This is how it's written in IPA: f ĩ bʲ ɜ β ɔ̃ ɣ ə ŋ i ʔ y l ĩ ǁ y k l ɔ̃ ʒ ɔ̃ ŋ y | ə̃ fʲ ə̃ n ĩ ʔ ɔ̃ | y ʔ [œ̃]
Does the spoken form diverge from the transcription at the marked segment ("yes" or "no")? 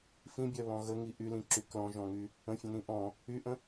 yes